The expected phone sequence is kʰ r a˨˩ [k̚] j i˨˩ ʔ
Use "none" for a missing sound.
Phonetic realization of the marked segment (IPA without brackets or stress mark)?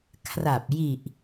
p̚